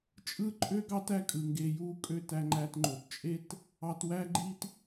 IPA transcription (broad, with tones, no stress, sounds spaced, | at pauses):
t͡ʃʼ ɯ˥ ǃʼ ø˥ ɡ ɑ˥ t æ˧ kʼ ɯ˩ ŋ ɡ e˧ j u˥ kʼ ø˥ t æ˧ ŋ͡ǃ æ˧ t ŋ͡ǃ o˩ t t͡ʃʼ e˥ t | ɑ˧ t w æ˥ ɡ͡ǃ i˥ t